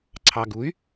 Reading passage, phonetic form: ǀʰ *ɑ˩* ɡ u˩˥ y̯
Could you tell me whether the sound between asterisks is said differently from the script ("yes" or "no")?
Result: no